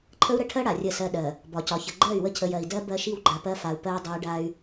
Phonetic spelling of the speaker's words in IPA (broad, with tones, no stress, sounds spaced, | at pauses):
ǃʰ ə˦ u̯ ɾ ə˦ ʈʰ ɜ˦ ɽ a˨ rʲ ə˦˨ s ɜ˦ ɗ ɜ˨ | b ɒ˨ c ɒ˨ ç ə˨ ɡ͡ǃ ɜ˦˨ y̯ w ə˦ cʰ ə˨ j ɜ˨ i̯ d ɜ˦ b ɜ˦ ʃ i˦ w ɡ͡ǃ a˨ p ɜ˦ f a˨ u̯ p ɜ˦ j dˤ ɜ˦ y̯ ɖ a˦ y̯